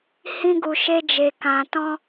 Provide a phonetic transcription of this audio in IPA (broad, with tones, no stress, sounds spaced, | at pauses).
h ĩ˦ ɡ u˧ ʃ e˦ d͡ʒ e˧ k ã˧ t ɔ̃˦